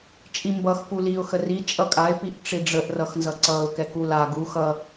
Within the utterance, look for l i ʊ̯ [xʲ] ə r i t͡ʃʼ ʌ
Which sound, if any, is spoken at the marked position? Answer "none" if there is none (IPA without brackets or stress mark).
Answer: x